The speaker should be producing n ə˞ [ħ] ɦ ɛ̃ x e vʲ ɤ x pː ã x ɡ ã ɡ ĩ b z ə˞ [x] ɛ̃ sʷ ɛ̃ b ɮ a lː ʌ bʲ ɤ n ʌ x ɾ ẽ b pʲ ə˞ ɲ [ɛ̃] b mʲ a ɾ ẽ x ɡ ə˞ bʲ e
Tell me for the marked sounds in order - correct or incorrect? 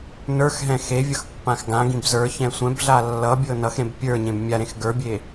incorrect, incorrect, incorrect

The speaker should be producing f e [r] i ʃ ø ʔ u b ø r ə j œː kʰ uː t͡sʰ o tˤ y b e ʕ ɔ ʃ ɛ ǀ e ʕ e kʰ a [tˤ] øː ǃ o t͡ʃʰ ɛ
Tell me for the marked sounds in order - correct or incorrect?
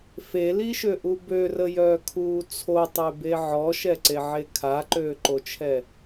incorrect, incorrect

